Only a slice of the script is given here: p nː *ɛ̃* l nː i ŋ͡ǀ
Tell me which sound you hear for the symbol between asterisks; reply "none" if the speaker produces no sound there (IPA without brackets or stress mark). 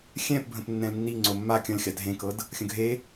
ɛ̃